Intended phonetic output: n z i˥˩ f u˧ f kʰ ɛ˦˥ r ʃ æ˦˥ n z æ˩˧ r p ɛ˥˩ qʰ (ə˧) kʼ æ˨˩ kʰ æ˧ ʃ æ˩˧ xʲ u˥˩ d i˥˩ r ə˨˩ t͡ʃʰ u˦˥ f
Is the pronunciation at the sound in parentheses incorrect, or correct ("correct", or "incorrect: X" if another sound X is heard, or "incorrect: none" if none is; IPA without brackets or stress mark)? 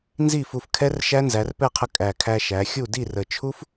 correct